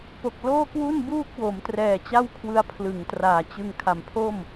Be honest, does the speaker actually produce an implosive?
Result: no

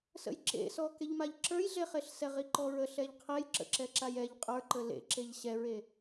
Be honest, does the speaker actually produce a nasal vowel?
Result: no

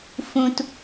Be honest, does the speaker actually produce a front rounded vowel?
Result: no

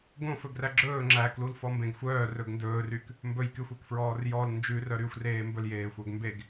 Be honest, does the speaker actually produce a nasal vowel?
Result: yes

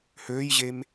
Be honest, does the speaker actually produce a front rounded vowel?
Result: yes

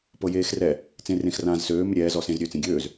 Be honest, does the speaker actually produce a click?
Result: no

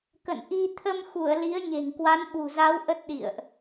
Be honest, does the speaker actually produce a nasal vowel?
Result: no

